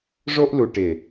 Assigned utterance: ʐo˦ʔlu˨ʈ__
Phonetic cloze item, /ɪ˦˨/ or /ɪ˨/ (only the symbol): ɪ˨